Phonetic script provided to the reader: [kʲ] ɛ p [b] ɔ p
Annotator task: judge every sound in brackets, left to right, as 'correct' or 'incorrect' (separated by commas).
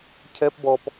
incorrect, correct